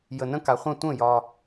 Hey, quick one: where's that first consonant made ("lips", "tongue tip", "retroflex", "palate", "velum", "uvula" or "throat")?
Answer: palate